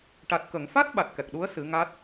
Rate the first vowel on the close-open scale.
open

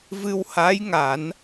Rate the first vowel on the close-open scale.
close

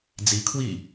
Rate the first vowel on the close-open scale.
close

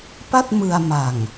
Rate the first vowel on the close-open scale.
open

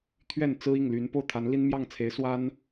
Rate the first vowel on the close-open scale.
mid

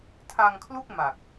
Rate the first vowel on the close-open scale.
open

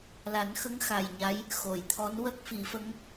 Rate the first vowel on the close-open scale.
open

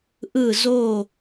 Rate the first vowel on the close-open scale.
close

